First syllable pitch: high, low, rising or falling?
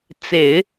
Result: low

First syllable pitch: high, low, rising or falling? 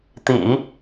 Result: low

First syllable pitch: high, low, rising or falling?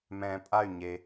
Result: low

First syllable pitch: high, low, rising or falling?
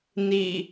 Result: low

